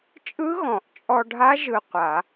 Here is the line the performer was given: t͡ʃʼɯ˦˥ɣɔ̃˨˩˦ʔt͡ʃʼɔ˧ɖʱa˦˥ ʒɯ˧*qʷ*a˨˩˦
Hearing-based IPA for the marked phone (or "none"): qʷ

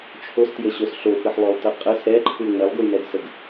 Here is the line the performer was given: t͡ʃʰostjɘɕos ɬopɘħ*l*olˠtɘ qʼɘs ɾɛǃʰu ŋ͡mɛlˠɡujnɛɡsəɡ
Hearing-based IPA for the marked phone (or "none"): lˠ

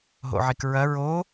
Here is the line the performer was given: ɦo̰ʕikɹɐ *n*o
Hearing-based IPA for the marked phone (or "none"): ɹ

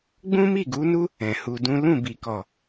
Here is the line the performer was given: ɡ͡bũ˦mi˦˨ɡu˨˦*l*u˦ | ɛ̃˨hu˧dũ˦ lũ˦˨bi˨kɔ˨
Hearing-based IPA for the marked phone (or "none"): n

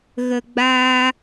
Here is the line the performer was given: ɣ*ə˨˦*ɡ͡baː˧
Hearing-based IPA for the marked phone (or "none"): ə˨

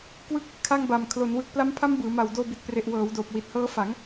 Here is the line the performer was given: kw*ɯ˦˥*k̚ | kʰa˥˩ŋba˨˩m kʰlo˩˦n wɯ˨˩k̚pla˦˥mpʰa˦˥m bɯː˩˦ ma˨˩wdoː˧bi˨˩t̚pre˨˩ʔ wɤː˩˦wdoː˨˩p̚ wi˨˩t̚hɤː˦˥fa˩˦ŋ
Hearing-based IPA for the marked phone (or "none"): ɯ˦˥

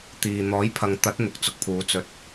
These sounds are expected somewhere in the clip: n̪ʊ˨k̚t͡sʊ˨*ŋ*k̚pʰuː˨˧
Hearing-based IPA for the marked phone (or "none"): none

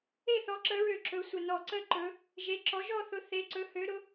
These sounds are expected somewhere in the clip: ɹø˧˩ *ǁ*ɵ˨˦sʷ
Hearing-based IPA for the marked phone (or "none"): ǁ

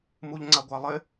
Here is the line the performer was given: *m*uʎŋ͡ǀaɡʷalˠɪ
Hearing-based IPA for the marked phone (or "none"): m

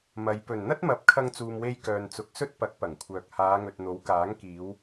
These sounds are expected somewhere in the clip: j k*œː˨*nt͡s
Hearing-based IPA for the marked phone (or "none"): œː˨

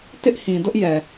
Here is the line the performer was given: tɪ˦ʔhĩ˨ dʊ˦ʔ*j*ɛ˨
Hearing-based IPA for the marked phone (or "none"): j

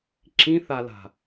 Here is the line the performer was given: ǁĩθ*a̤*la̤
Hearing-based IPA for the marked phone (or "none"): a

